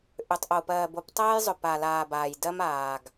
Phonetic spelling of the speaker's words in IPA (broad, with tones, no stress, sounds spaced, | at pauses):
ʔ ʏ˨ tˤ ʔ o˨ p ɜː˨ b o˨˦ p tˤ ɜː˦ j zˤ ʏ˨ p a˨ l aː˨ b aː˨ j d ɜ˦ m aː˨ ɡ